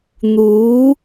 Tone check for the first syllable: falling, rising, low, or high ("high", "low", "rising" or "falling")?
rising